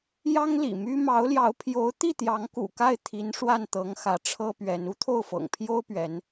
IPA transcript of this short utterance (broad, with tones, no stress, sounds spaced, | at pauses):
j ɑ˥ ŋ l ḭ˨˩ m y˥ m ɑ˧˥ ʊ̯ l j ɑ˧˥ ʊ̯ pʰ j o˧˥ ʊ̯ t̪ i˥˩ t̪ j ɑ˧˥ ŋ k ṵ˨˩ k a˥˩ ɪ̯ t̪ʰ i˧˥ n ʂ w a˥˩ n t̪ ɤ˧˥ ŋ x ä˧˥ ʈ͡ʂʰ ɤ˥ p ɥ ɛ˧˥ n u˥ t̪ʰ o˥˩ ʊ̯ f ɤ̰˨˩ ŋ pʰ j o˥ ʊ̯ p ɥ ɛ˧˥ n